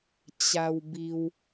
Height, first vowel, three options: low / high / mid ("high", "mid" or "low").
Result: low